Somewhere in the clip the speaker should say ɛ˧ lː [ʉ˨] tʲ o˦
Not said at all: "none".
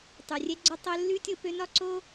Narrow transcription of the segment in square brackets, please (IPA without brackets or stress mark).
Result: ʉ˦